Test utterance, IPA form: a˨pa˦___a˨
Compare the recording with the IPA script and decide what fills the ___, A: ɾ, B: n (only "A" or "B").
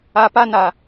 B